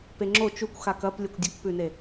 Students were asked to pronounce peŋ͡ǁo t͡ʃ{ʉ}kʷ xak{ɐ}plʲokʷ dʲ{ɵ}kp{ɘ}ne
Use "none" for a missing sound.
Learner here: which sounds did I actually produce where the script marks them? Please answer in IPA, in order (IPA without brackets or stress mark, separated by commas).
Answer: u, ɐ, ɵ, ʉ